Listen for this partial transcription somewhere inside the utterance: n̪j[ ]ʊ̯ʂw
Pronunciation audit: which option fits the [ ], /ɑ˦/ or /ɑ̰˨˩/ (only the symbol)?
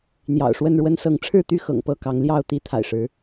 ɑ̰˨˩